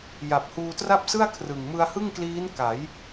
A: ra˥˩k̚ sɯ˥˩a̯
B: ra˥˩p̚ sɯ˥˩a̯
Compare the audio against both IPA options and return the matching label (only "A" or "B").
B